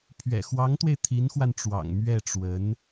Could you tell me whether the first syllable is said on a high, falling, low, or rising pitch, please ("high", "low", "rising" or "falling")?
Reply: low